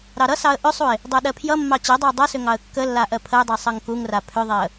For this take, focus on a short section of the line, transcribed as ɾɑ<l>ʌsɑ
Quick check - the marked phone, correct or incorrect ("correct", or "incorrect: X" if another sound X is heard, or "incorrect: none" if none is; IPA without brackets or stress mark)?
incorrect: ɾ